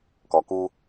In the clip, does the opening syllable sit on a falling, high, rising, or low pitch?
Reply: low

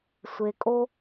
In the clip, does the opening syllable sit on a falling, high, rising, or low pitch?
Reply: low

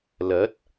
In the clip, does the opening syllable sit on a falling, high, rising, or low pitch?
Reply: rising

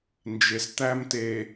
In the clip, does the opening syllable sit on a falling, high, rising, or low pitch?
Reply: low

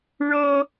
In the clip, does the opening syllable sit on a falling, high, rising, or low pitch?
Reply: high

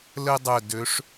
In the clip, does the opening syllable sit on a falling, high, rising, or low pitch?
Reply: high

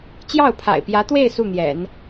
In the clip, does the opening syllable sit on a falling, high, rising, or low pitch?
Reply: falling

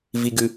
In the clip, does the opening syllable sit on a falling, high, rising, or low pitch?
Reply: low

